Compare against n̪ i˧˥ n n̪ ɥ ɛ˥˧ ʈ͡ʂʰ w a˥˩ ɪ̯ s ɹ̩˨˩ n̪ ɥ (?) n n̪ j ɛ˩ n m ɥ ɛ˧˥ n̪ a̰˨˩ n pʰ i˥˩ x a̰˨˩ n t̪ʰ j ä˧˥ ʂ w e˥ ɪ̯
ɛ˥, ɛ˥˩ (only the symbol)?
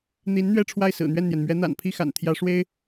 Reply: ɛ˥˩